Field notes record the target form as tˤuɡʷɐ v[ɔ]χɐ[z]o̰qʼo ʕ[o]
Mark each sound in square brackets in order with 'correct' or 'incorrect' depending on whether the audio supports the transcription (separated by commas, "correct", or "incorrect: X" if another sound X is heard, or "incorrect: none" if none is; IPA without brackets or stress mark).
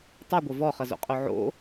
correct, correct, incorrect: o̰